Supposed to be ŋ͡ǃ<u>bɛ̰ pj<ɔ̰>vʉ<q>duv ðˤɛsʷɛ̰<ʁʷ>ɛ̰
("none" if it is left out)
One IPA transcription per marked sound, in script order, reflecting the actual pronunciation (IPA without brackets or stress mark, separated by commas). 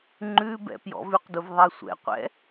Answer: ʉ, ɔ̰, q, qʷ